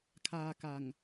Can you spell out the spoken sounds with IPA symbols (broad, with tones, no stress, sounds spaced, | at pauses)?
kʰ aː˧ k a˨˩ ŋ